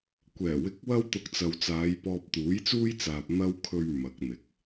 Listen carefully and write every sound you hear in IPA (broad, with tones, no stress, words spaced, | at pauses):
kʷɛː˨˩wɪ˧k̚wɐ˥w t̪ʊ˧k̚t͡sɐ˨wt͡saː˨˧jpɔː˧p̚ t̪uː˨˥jt͡suː˥jt͡saː˨p̚ n̪ɐ˧wkʰɵ˨ɥ mɐ˨˥k̚n̪ɪ˨k̚